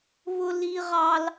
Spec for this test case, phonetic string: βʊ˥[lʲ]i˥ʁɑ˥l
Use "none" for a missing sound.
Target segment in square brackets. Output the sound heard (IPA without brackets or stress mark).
l